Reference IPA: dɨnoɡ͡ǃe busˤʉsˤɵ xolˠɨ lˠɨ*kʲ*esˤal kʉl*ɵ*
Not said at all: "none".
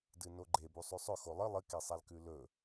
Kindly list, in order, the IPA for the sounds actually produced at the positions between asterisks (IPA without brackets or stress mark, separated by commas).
k, ɵ